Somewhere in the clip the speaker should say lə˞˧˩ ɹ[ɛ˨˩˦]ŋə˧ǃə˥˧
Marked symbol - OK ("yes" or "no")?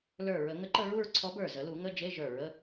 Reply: no